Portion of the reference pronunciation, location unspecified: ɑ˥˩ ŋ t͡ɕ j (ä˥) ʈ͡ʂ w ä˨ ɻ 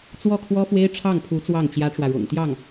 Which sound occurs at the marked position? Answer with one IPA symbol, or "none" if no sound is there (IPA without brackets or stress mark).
ä˥